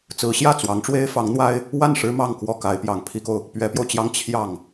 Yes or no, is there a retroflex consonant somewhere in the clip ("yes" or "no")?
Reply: yes